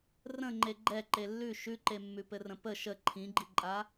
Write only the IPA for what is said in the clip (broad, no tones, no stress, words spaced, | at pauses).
rə̃ŋ͡ǃe ɡ͡ǃɛ ǃelːʉ ʃʉǃemːʉ pɘrə̃pə ʃə ǃʰĩɡ͡ǃiǃʼa